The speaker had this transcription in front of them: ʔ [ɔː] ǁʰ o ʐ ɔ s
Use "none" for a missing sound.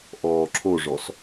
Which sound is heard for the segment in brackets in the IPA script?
ɔː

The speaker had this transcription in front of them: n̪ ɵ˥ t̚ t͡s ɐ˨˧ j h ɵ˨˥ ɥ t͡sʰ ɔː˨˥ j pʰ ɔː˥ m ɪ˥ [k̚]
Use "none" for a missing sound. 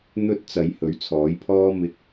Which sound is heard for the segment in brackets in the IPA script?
k̚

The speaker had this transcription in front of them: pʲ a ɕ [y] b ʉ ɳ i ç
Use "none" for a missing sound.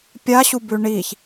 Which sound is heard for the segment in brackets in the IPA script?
u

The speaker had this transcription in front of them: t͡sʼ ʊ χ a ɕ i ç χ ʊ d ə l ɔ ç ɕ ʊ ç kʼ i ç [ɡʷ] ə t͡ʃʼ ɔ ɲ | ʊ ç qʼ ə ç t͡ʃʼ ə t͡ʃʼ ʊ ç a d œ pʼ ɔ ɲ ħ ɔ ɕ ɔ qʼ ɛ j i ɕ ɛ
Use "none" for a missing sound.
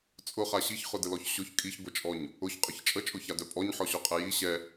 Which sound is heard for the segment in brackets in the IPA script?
ɡʷ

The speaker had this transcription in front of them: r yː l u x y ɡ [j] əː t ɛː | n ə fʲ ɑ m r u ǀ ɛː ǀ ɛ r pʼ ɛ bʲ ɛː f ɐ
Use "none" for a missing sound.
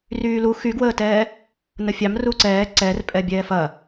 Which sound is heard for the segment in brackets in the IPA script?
w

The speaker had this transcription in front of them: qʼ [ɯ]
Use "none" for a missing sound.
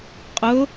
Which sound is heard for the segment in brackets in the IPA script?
ʊ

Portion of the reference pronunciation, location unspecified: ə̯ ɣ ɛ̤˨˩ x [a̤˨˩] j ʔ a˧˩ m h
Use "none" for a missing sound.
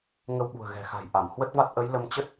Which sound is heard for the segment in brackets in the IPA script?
a̤˨˩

